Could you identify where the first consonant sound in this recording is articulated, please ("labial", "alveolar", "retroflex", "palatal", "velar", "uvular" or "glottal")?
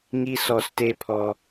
velar